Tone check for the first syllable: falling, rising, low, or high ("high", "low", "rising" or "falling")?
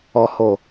low